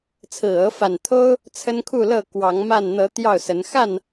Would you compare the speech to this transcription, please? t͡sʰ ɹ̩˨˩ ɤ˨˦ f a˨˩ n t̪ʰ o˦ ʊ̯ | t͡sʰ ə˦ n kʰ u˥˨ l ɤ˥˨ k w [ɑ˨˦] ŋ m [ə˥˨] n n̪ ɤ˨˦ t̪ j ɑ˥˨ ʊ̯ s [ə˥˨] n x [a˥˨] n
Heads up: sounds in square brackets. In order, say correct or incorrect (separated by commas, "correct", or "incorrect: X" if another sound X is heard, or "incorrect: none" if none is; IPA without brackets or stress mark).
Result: correct, incorrect: a˥˨, incorrect: ə˨˦, correct